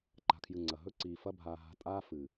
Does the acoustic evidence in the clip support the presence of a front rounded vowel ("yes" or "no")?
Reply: no